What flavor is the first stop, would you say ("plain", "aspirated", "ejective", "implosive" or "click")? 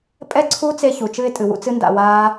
ejective